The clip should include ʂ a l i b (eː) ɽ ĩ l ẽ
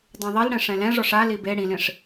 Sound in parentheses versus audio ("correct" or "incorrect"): incorrect